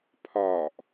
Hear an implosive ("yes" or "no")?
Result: no